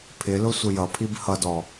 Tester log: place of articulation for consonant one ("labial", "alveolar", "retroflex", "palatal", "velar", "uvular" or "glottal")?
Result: labial